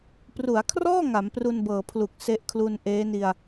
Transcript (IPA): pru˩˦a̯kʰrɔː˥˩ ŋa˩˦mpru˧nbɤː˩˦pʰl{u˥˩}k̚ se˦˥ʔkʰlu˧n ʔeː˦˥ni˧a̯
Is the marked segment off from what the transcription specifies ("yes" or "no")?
yes